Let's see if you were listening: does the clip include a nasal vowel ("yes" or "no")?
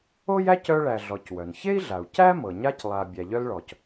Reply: no